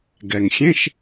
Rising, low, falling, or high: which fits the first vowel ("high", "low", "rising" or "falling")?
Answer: low